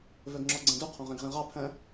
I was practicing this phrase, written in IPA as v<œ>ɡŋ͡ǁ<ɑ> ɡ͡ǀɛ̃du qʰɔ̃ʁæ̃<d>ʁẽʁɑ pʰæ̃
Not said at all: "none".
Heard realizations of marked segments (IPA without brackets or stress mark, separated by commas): œ, ɔ, ɡ